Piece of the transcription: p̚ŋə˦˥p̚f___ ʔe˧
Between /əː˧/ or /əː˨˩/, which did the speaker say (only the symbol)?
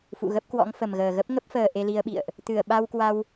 əː˨˩